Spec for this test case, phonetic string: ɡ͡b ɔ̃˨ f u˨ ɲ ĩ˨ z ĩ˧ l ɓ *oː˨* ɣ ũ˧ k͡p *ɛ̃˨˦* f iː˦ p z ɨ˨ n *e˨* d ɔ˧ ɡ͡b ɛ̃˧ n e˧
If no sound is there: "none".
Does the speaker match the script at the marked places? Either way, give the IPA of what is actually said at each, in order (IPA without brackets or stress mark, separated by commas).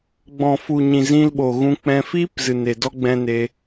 o˨, ɛ̃˧, e˨